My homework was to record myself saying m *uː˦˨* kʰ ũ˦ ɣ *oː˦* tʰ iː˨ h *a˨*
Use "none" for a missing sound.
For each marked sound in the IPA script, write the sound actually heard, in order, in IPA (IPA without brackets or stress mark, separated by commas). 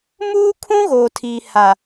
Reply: uː˦, oː˨, a˨